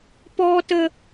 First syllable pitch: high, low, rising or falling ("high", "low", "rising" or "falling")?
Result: high